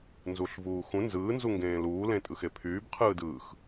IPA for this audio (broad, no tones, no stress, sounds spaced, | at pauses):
n z uː ɬ v uː x ũ n z ɯː n z u ŋ ɡ ẽː l uː l ẽ tʼ ɯ x e pʰ yː b qʰ ɯː d ɯː x